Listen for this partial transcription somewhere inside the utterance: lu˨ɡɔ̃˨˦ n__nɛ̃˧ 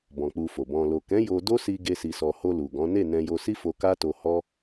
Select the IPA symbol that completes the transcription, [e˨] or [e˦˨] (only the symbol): e˦˨